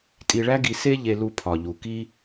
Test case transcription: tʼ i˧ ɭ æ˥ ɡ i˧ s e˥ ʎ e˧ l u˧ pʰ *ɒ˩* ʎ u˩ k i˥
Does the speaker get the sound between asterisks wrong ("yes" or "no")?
no